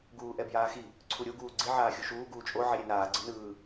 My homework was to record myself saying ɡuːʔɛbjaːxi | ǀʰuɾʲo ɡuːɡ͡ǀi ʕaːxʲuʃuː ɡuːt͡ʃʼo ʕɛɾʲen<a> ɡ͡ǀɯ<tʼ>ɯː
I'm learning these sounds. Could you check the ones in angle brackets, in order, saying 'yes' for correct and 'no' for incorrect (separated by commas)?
no, no